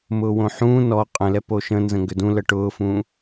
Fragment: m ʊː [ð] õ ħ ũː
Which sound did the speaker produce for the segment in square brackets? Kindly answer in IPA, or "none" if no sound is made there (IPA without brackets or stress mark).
w